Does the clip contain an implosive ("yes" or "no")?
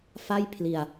no